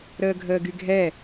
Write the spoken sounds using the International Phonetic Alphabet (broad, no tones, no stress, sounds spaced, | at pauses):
ɾ əː ɡʱ əː ɡ y ɡʱ ɛ